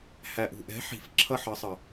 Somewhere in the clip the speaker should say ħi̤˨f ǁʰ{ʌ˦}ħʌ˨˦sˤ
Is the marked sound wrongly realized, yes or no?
no